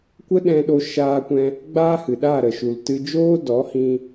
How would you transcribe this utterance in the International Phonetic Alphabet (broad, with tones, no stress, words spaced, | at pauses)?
kʷə˦ɗɛ̃˧ɗo˧ʃaː˧ kʷɛ̃˧ | ɡ͡baː˦hɨ˨ɗaː˦˨ ɾə˨ʃu˨ltɨ˧d͡ʒoː˦ dɔ˨˦hĩ˧